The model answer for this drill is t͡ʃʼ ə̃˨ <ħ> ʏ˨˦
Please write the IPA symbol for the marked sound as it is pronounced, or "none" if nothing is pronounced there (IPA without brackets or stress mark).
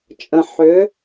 ħ